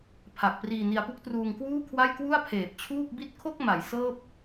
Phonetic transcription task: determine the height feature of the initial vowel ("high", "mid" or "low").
low